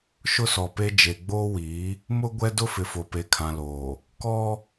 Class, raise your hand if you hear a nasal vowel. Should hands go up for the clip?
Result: yes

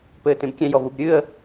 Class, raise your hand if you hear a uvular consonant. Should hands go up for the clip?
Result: no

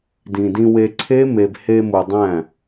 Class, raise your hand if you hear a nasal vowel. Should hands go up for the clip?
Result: yes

